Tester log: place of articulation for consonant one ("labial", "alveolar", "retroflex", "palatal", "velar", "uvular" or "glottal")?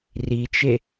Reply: alveolar